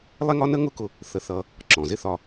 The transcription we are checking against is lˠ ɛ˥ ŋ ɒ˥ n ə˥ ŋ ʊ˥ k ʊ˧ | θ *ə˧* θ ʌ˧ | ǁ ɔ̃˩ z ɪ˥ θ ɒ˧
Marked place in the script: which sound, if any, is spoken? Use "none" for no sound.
ə˧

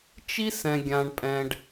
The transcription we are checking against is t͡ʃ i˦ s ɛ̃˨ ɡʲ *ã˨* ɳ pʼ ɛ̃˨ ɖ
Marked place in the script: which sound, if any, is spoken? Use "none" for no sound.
ã˨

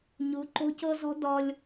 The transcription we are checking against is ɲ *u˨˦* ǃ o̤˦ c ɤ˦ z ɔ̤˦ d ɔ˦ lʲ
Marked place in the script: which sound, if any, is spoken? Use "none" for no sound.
u˨˦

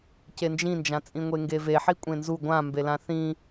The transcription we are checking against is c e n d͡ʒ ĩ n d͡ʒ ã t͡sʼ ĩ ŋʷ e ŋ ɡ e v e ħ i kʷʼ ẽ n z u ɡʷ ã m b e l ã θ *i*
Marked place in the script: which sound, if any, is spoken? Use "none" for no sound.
ĩ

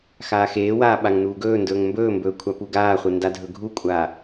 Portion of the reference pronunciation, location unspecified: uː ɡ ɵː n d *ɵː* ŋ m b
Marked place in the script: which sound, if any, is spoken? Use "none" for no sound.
ɵː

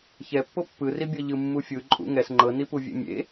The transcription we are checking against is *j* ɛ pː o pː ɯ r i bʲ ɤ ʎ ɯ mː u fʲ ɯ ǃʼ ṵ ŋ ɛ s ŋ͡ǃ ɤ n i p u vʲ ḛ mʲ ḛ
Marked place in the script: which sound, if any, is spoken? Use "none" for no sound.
ç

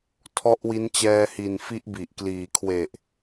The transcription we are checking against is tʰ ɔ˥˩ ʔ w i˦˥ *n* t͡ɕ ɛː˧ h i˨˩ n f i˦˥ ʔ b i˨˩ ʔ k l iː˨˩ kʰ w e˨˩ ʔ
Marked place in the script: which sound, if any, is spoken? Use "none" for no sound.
n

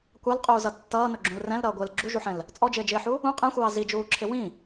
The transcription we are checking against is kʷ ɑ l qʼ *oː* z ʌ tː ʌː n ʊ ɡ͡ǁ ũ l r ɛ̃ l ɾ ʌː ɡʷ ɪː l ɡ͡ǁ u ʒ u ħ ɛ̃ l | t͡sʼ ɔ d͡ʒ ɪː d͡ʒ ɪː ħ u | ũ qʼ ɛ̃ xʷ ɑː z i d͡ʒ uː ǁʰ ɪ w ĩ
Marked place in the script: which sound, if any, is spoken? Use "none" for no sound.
uː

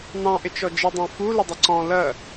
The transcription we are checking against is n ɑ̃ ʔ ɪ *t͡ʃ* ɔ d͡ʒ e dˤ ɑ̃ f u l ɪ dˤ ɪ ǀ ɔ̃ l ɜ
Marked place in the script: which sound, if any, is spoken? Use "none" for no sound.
t͡ʃ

